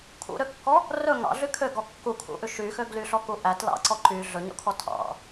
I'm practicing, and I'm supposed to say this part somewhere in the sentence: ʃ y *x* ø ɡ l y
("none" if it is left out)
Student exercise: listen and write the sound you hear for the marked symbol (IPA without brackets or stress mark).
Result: x